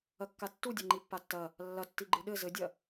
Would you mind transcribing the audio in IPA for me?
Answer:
ɐkːatːudʲa ŋ͡ǃipːatːɐ | lːɐtːi ɡ͡ǃɨɗɘ zɘdʲɐ

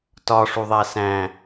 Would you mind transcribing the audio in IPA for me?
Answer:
tɒʂuðˤæ sæ̃

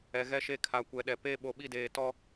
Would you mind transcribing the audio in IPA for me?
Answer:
ɛ˨ɣɛ˦ ʃe˦ kʰa˨kʷɛ˨ɗɛ˨ pe˦ ɓo˨ɓi˦˨deː˨ tɔ˦

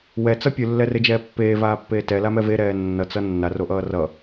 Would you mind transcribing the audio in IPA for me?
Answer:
wɛt͡sʌ pʲɯlːɛred͡ʒɛː pːeːvaːpːeː tɛlamɛ veɾɛː nːʌt͡sʌ nːaroʔʌː rʌ

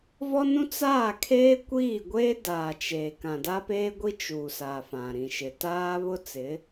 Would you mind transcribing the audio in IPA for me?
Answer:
vɔ˦nũ˦ t͡saː˦˨kʰeː˦kʷiː˦˨ɡʷeː˦ daː˨t͡ʃeː˨ kã˨da˦peː˦ɡʷi˦ t͡ʃuː˨sa˨ fã˨ɾĩ˨ʃɪ˨ taː˦βʊ˦t͡sɪ˨˦

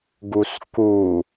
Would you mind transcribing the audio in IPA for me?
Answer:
ɡusku

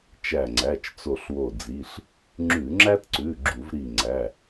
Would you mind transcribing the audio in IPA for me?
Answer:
t͡ʃæ˧˩ŋ͡ǀæ˩˧˩t͡ʃ t͡so˧˩ɬwo˧˩d͡zi˩˧˩ɬ | ŋ͡ǁʉ˧˩˧ŋ͡ǁæ˥tǀʉ˩˧˩ ɡ͡ǁu˧˩˧v ɾi˧˩ŋ͡ǀæ˩˧˩

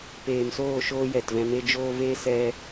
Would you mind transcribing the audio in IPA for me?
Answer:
peː˨msoː˦˨ ʃoː˦jɛ˨tvɛ̃˧ me˧ d͡ʒoː˧ve˦ sɛ˦

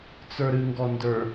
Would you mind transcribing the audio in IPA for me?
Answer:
t͡sə˞ɾɨŋɡɔndə˞

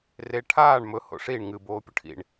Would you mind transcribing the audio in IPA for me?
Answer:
re ʈʰaːɳ mɵ ho̰ʂiɳ ŋɨ boːpʲɵʈʰḭɳ

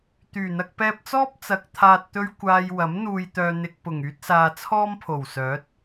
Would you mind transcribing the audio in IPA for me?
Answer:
t̪yː˨˩n̪ɐ˧k̚ pɛː˧p̚t͡sɔː˥p̚ t͡sɐ˨k̚ t̪ʰaː˨t̚t̪ɵ˧ɥ kʷaː˧j wɐ˨˥m n̪uː˧jt̪œː˧n̪ɪ˧k̚ pʊ˨˩ŋyː˥t̚saː˧ t͡sʰɔː˥mpʰo˨˩wsœː˨˥t̚

